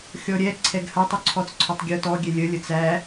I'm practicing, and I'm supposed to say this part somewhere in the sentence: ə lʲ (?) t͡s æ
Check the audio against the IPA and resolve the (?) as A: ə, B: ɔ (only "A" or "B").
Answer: A